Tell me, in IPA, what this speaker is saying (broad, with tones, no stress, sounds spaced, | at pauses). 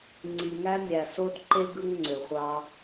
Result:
ŋ͡ǀ i˨ ŋ æ˦ mʲ æ˨ s o˦ d ǃ e˦ ɡ ɯ˦ ŋ ŋ͡ǀ ø˨ χʷ ɑ˦